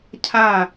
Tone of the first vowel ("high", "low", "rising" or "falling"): falling